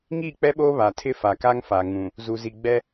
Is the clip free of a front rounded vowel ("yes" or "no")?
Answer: yes